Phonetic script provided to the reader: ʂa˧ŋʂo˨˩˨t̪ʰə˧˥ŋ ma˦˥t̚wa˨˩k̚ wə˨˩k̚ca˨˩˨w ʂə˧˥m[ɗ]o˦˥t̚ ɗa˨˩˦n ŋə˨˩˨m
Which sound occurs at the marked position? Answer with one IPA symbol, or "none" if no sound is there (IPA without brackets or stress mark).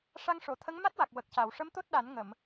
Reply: t̪